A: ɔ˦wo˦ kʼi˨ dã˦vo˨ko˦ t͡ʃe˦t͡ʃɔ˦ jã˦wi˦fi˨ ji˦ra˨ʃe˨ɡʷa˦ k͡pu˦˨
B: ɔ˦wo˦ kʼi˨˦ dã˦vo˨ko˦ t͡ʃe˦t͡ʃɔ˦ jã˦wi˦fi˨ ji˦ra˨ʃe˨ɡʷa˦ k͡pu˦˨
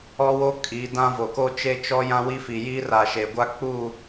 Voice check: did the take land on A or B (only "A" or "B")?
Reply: B